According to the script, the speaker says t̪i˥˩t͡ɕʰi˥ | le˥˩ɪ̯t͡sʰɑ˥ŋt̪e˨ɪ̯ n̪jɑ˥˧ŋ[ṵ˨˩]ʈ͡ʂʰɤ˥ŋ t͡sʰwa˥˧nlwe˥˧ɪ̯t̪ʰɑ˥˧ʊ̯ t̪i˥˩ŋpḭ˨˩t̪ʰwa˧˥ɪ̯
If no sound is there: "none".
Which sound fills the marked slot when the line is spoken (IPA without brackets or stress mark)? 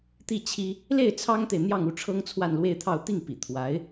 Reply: u˥˩